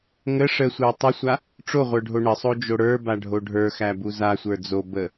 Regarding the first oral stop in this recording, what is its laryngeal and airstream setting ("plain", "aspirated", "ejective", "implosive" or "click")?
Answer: plain